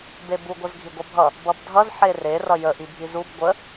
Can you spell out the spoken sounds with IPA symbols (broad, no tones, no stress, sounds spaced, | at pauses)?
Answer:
b e b u ɡʷ ə z ɡʱ i ɡʷ ʌ bʱ ʌ | b ʌ b dʱ ʌ z ħ e r e r ʌ j ə ʔ i bʱ i z u b ɡʷ ə